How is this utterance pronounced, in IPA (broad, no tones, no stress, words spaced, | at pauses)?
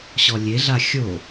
ɕɔlʲeɮa xʲo